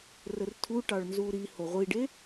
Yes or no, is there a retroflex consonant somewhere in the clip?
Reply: yes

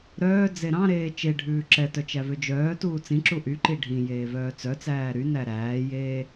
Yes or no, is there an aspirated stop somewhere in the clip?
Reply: no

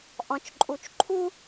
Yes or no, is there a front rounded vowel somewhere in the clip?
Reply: no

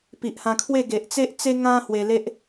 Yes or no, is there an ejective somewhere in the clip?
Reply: no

